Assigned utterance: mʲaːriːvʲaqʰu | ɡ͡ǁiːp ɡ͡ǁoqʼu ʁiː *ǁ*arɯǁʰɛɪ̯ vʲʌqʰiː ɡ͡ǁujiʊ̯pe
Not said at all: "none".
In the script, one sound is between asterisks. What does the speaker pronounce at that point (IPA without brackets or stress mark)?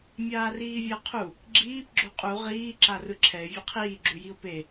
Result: ǁ